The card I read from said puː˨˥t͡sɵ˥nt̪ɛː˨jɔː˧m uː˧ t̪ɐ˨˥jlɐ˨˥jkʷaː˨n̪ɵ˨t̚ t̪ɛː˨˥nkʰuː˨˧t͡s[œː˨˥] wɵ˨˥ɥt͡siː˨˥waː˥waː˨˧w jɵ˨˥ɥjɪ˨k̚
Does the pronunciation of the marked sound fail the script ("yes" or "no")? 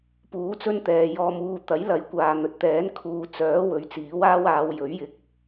no